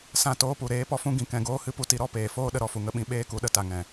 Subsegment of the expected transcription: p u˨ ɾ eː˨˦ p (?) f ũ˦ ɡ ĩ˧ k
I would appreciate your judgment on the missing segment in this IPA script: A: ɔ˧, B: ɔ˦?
A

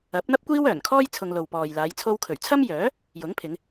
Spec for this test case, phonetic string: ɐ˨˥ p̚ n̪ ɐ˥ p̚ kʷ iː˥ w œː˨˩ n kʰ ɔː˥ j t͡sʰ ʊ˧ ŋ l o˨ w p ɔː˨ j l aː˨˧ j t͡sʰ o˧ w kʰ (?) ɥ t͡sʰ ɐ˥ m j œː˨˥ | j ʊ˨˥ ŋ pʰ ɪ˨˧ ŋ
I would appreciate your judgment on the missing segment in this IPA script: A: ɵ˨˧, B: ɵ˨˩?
B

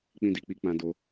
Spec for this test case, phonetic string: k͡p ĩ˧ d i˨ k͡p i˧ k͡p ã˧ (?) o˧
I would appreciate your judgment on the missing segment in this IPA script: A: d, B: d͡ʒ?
A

